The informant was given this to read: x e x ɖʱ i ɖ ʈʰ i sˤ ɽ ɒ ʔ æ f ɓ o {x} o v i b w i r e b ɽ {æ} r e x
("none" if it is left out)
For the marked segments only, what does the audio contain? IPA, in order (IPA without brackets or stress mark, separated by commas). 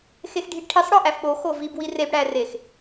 x, æ